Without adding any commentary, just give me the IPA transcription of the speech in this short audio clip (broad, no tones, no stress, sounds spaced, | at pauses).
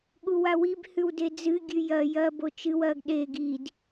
ɠ u w a w i b h ʉ w d e d͡z ɨ ɡʲ ʉ j ɐ j ɐ b o t͡ʃ ɨ w ɐ ɡ ɗ e ɡ i d